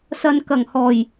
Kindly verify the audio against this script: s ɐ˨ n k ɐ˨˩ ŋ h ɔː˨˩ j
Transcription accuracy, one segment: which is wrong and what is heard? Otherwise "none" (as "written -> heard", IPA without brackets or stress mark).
none